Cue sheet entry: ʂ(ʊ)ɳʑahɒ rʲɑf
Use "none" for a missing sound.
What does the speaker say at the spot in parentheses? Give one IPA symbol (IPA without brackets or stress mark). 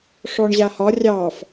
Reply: ɔ